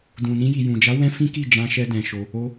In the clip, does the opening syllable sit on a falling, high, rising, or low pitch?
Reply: low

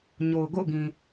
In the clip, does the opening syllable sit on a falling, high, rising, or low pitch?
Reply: low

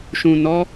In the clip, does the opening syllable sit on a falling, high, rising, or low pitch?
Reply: low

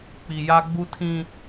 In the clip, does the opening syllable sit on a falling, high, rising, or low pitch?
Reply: low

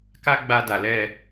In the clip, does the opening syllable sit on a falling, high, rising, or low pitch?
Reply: high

